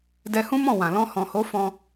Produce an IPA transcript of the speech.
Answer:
dɛ˧hũ˦mɔ̃˦˨wã˨ lɔ̃˧hɔ̃˨ho˨˦ fɔ̃˧

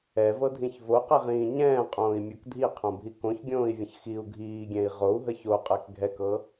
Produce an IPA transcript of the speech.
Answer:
ɛvɤdʱĩç voqiʁĩː ɲɛ̃ːqʼõːi̯mʲok dʱiqʰõbʱi kõçɡʲõːi̯vʲə̃ç xiu̯ ɡʱiːɡʲɛ̃i̯ ʁou̯ɦə çoqʼɛk ɡʱɛkɤ

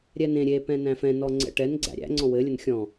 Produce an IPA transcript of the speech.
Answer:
ɾʲɛnẽ ɾʲepɛ̃ næ̃fɛ̃nɔ ŋ͡ǀɛ̰ʈɛn ɡ͡ǀæ̰ɾʲæ̰ ŋ͡ǀɔ̃wɘlʲən xʲɔ̃

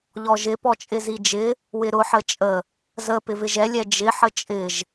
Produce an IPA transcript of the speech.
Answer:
ʎɔʒɪ pɔt͡ʃʼɪzid͡ʒɪ | wɪɾʊ ħət͡ʃʼə | zə pɪvɪʒɛ lʲɛd͡ʒɪ ħət͡ʃʼɪʒ

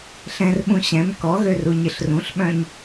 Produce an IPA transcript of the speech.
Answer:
ɬɛ̃rɓũ ɕɛ̃m kɔɣøruɲɪɬ rũɬɓœ̃ɲ

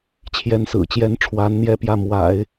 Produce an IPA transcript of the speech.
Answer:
t͡ɕʰjɛ˧˥nsɹ̩˨˩t͡ɕjɛ˧˥nʈ͡ʂʰwa˧˥n n̪jɛ˥pjä˥˩ mwa̰˨˩˦ɪ̯

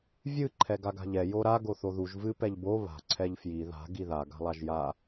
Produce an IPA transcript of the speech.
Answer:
vʲɨ ǃʰɛɡaɡa̤ʎɛ joɾa ɡoθoðuʒ vɨ pɛʎbo βa̤ ǀʰɛʎfji ða̤ ɡiða ɡa̤lˠaʒja

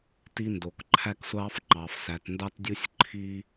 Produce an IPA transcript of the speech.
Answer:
ti˧ndo˩kǃʰæ˧ksʷɑː˧f ŋ͡ǃɑ˩fsæ˩tndɑ˧tdʲu˧sʲ ǃʰi˥

